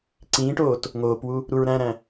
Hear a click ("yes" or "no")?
yes